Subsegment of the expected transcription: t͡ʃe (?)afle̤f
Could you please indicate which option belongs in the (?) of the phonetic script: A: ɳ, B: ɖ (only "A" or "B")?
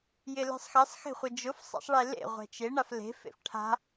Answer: A